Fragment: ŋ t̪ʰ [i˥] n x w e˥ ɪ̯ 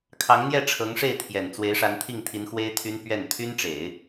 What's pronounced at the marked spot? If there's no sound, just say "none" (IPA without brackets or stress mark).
i˧˥